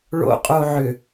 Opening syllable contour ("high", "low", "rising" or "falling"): low